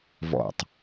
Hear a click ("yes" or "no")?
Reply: no